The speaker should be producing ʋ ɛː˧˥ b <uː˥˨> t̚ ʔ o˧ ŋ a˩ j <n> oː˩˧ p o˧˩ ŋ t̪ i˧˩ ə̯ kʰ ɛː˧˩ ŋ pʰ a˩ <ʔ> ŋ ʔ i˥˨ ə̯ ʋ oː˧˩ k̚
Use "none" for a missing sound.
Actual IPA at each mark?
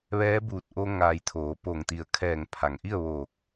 uː˧˩, t̪ʰ, none

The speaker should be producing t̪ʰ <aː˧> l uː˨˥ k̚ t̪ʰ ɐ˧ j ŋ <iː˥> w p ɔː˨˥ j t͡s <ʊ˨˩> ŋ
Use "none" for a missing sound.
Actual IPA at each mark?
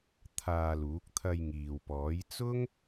aː˧, iː˨, ʊ˥

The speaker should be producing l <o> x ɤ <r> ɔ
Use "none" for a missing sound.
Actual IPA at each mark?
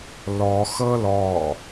ɔ, l

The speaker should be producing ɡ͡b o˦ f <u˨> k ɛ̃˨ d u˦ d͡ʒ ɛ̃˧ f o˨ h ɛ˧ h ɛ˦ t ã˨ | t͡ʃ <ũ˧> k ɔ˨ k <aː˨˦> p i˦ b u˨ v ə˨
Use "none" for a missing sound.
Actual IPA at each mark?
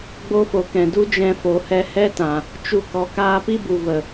o˨, u˧, aː˧

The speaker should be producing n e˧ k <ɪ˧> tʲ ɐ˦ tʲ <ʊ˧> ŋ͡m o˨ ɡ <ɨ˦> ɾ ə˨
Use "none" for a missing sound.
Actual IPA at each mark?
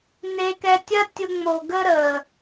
ɛ˧, ʊ˧, ə˦

